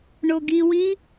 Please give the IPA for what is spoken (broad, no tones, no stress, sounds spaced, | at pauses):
ɳ o ɡ i w i